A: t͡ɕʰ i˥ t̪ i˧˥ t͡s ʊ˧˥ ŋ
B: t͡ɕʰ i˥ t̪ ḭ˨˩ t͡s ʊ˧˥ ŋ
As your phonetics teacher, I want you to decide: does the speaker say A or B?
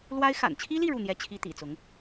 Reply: B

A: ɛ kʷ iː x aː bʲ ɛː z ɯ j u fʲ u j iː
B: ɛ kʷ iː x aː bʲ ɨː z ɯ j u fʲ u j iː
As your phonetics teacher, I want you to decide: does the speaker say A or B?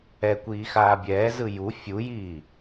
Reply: A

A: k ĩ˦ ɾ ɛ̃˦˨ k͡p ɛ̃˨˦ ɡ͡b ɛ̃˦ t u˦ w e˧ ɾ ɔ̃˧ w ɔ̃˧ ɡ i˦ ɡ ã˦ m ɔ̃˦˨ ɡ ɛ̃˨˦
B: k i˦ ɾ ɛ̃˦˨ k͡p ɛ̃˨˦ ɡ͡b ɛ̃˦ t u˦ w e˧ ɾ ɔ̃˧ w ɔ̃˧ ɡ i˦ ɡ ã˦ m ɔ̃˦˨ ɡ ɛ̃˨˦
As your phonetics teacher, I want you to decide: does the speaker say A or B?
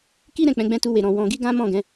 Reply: B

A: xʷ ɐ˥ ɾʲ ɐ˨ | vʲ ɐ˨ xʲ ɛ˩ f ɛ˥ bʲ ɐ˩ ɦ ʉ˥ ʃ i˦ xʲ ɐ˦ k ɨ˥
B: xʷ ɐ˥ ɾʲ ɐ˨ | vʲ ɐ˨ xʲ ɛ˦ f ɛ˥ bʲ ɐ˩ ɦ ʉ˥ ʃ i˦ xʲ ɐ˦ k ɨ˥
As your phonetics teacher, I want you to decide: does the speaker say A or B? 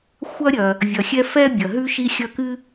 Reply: B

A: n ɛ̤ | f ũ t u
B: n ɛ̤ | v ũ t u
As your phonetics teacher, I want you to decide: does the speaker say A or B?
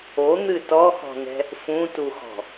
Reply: A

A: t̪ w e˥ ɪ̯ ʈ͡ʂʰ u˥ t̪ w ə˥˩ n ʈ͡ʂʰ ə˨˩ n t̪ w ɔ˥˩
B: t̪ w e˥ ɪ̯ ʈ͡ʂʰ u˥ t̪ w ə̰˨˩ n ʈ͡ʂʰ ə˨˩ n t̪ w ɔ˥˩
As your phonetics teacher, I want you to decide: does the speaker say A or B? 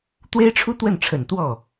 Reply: A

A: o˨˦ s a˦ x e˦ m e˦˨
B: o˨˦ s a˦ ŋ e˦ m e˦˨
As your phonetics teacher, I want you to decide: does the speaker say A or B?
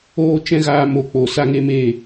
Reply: B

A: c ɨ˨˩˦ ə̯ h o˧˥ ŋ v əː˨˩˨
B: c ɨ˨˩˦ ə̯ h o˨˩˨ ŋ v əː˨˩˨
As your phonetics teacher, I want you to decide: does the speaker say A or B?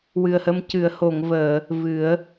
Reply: B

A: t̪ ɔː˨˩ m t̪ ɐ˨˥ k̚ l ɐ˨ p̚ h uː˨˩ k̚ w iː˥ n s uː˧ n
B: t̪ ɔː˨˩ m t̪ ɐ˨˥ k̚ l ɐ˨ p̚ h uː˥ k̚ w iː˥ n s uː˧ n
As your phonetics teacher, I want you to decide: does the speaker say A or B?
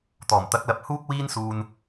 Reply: B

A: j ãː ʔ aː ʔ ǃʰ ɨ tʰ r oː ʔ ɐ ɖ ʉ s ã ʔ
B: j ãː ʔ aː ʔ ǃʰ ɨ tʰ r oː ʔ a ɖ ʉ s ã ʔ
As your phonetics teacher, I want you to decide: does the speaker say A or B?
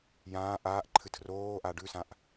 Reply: B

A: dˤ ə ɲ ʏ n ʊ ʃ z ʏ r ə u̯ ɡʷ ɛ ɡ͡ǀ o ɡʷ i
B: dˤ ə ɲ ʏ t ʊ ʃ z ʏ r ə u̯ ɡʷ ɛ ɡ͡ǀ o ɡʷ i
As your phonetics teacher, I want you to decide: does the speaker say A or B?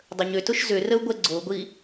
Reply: B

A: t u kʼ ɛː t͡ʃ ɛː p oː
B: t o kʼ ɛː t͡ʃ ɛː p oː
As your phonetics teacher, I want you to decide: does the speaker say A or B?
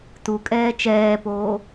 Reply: A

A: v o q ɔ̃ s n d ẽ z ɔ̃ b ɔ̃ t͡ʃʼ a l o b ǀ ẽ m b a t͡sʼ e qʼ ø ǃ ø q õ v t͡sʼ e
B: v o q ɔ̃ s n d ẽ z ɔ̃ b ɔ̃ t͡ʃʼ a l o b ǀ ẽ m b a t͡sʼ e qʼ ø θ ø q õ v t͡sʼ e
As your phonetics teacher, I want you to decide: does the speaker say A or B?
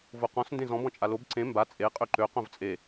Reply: A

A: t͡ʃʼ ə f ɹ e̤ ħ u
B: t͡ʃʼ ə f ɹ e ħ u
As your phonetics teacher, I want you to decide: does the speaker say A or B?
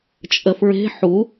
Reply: A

